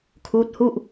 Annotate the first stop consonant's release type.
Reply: aspirated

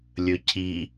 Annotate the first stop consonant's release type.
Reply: aspirated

